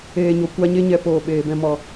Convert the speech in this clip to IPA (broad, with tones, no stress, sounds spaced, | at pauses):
eː˨ ɲ o˨ kʷ a˧ ɲ e˦ ɲ ɛ˧ p oː˨ ɓ eː˨ b ɛ̃˧ m ɔ˨